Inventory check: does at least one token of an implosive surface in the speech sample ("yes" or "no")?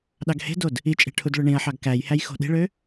yes